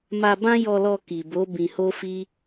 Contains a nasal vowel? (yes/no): yes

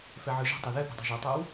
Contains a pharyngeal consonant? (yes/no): yes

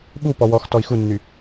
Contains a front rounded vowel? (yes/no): yes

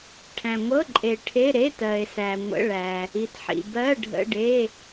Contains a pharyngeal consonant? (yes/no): yes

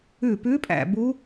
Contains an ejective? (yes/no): yes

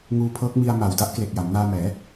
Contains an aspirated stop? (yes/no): yes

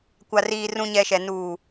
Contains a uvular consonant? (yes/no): no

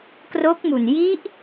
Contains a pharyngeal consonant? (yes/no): no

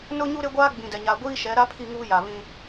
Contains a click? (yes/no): no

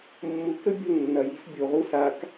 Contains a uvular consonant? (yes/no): yes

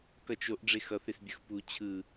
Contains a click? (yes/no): no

